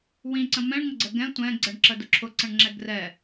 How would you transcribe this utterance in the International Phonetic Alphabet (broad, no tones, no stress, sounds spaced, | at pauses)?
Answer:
w ĩ ǀ ə̃ m ɛ̃ ɳ ŋ ə ɡ͡ǀ ə ɡ ɛ̃ tʷ ɛ̃ ɡ͡ǀ ə ɳ ǁ ə d ʊ ǁʰ ʊ ǀ ə̃ ɳ ŋ͡ǁ ɛ ɡ r ɛ